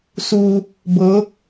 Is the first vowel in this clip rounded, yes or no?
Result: yes